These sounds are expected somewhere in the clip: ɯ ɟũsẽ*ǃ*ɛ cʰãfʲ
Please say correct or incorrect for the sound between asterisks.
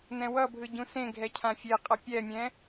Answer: incorrect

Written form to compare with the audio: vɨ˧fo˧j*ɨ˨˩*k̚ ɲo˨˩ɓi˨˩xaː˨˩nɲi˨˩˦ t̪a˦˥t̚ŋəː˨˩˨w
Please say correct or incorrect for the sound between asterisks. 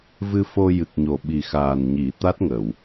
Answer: correct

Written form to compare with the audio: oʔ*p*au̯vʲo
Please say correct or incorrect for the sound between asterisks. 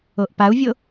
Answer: correct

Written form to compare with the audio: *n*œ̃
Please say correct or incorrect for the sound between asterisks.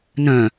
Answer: correct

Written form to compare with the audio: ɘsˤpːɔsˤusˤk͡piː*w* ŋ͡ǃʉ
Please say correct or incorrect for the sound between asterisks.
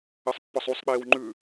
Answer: correct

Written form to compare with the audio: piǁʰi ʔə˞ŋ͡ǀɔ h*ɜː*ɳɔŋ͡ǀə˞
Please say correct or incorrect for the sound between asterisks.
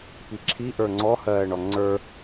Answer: correct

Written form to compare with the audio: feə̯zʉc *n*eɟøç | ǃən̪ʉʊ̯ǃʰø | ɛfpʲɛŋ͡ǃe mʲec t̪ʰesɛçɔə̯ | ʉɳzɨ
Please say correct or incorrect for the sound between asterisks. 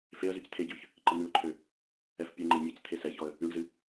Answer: incorrect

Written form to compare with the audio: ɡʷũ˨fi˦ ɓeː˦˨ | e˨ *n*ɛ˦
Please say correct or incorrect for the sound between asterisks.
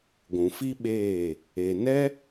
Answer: correct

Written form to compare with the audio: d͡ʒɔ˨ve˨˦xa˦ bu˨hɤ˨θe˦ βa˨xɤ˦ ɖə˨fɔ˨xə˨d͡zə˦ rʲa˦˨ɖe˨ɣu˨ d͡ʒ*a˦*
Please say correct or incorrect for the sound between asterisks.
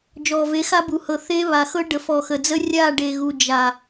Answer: incorrect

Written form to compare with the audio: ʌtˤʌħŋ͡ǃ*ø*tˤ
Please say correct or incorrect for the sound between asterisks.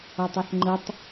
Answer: incorrect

